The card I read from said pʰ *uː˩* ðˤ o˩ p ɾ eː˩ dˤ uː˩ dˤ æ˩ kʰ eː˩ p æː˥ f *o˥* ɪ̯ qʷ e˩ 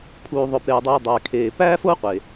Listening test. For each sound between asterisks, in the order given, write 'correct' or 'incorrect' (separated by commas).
correct, correct